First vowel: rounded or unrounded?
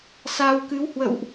unrounded